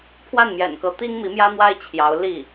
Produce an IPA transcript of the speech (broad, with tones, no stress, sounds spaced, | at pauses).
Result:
pʰ w a˥˩ n m j ɛ̰˨˩ n k ɤ˧˥ t̪ i˥ ŋ m i˧˥ m j ä˥ n̪ w a˥ ɪ̯ t͡ɕʰ j ɑ˧˥ ʊ̯ l i˥˩